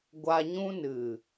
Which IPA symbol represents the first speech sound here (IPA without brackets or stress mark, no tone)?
ɡʷ